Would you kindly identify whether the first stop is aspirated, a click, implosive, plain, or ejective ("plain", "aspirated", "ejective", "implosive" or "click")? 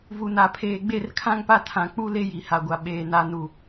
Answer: aspirated